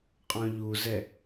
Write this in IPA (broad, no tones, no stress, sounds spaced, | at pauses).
qʼ ɔ̃ ʎ u z ɛ